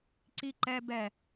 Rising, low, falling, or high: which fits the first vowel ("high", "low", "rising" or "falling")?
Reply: high